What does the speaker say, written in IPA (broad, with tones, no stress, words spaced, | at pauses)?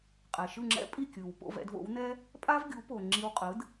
qʼɛ˩ʃɯ˥˩ŋ͡ǁɛ̰˥ pʼi˥˩kʲɯ˩w po̰˥˩vɛ̰˧dvo̰˩˥wnɛ˥ | pʼa˥vɡʲu˩˥po˩ ŋ͡ǁi˧wqʼɯ˩˥d